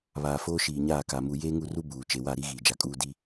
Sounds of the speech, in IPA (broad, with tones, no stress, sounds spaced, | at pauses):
β aː˨ f oː˦ ʃ iː˨ ɲ aː˦˨ k a˨ m u˨ j eː˦ ŋ u˦˨ r u˦ b uː˨ t͡ʃ e˨ w a˦˨ ɾ i˦ ɣ iː˨ d͡ʒ a˨ kʼ uː˦ d i˦